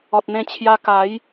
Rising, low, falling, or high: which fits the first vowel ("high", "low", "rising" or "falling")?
low